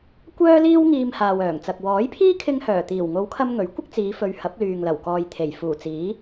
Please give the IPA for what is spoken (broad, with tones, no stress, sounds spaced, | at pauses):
kʷ œː˥ l iː˥ w ŋ iː˧ m h aː˨ w œː˨˩ ŋ t͡s ɐ˨ k̚ w ɔː˨˥ j pʰ iː˥ kʰ ɪ˧ ŋ h œː˨˩ t̪ iː˨˩ w ŋ o˨˧ w kʰ ɐ˧ m ŋ ɵ˨˥ ɥ kʷ ɪ˥ k̚ t͡s iː˨˧ f ɵ˨˧ ɥ h ɐ˨˥ p̚ l yː˨ ŋ l ɐ˨˩ w k ɔː˨ j t̪ʰ e˨˩ j f uː˨˩ t͡s iː˨˥